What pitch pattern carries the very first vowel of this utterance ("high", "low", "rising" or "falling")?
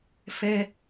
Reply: high